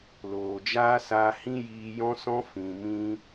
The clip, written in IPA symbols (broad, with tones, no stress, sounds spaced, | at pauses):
l oː˨ d͡ʒ aː˦ s aː˧ h ĩ˦ j iː˧ j ɔ̃˦ s ɔ̃˦ f ĩ˨ m ĩ˧